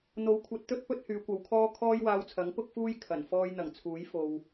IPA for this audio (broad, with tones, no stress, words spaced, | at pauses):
n̪o˨˥wkʷʰɐ˨˥t̚t̪ɵ˥t̚pɵ˥t̚ hyː˨˧kʷɐ˨˧wkʰɔː˥ kʰɔː˥jwaː˧wt͡sʰɐ˨˥ŋ pʊ˥k̚fuː˥j kʰɐ˨˩nfɔː˥j n̪ɐ˨˩ŋt͡sʰuː˨˥jfo˨w